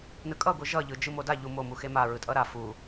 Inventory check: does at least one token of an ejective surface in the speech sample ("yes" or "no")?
yes